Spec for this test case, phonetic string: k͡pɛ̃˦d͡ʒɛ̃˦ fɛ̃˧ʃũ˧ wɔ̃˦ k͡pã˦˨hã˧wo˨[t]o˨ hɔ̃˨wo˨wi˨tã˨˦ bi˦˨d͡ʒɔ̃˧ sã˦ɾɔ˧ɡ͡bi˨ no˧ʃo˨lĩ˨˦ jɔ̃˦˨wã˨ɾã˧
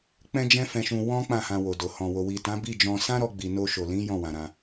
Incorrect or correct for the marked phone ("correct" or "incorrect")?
incorrect